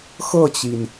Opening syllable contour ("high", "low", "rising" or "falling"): falling